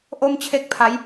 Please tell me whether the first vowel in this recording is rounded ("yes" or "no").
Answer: yes